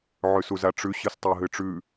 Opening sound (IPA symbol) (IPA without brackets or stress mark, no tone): ʕ